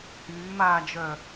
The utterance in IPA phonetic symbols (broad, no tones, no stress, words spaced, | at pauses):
hyːmaːd͡ʒœ